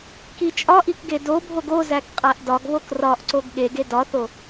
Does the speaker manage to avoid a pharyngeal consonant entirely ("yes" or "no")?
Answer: yes